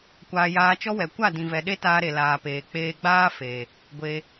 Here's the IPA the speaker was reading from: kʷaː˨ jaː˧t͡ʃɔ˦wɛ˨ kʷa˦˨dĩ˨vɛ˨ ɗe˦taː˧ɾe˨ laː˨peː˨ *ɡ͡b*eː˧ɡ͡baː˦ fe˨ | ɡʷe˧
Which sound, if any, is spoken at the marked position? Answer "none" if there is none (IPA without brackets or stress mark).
k͡p